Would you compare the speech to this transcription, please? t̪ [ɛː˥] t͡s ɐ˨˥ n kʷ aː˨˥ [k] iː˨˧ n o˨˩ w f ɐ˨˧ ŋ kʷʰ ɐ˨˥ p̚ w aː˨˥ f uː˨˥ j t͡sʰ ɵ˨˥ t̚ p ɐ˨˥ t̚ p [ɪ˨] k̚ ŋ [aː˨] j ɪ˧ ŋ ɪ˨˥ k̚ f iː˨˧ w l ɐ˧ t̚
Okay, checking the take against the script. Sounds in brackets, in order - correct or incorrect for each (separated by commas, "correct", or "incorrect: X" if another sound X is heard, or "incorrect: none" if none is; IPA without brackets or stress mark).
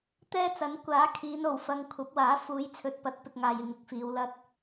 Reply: correct, incorrect: kʰ, correct, correct